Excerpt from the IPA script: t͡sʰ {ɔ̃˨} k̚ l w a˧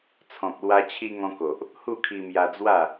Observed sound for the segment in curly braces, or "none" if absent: ɔ̃˨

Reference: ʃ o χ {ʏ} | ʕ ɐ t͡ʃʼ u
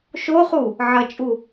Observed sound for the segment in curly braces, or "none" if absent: u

